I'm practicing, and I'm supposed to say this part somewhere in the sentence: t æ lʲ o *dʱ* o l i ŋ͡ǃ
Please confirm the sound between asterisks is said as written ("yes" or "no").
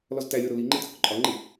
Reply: no